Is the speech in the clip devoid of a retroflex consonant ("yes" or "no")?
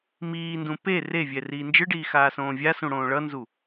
no